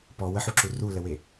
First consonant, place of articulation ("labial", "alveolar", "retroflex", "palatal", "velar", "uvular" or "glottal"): labial